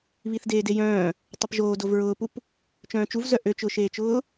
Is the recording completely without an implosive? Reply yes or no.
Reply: yes